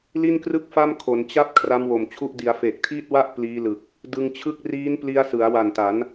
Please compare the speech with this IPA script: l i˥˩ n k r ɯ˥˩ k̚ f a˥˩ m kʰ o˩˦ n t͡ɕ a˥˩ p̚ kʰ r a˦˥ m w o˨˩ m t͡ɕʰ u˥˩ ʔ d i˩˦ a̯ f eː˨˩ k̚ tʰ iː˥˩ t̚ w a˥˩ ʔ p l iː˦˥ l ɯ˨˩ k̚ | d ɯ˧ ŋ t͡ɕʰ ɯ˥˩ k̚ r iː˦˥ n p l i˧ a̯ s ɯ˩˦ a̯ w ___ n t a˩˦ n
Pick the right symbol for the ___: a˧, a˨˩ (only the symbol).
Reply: a˨˩